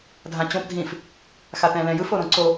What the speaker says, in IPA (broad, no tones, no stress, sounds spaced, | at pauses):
dʱ ã t͡ɕ õ p dʱ ĩ f | x a t ɛ̃ l ɛ̃ j ɯ f o ɾ õ ǀ o